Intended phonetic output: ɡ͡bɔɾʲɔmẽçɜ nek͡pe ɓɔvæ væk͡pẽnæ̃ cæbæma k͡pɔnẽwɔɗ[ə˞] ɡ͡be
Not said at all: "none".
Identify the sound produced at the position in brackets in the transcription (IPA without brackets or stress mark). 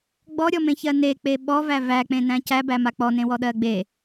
ɜ